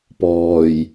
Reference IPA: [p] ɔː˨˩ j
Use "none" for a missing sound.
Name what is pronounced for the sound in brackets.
p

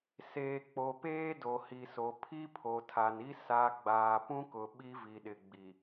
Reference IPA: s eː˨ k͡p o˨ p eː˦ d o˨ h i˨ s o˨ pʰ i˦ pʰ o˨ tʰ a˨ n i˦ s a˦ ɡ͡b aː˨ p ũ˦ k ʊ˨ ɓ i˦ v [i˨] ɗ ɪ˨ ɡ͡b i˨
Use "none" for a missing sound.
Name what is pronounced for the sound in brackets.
i˨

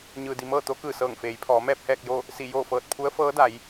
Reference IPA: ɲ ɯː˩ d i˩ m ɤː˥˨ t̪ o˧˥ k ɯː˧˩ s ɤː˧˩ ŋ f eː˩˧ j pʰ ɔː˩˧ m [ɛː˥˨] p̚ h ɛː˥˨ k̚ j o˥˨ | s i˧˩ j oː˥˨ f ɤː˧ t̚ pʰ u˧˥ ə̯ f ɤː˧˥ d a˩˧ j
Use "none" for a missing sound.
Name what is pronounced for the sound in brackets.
ɛː˥˨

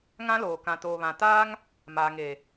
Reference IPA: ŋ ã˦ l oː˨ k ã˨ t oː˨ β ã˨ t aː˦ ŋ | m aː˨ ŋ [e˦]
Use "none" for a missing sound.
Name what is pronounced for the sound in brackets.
e˨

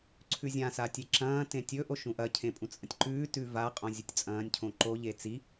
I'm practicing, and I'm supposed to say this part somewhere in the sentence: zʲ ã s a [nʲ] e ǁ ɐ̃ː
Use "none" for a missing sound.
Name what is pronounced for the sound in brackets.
tʲ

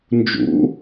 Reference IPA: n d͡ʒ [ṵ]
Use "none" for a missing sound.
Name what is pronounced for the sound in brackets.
ṵ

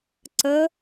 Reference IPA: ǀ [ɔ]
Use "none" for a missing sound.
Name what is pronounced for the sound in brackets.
ə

